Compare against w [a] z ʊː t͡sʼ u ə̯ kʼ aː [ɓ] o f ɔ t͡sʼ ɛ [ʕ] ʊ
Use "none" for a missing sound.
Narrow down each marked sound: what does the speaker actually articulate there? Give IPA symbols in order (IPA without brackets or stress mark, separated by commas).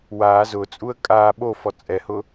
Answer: aː, ɓ, h